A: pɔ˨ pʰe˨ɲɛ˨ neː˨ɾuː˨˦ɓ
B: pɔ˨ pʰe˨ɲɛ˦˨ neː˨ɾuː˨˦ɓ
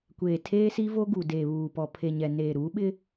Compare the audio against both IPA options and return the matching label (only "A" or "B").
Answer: A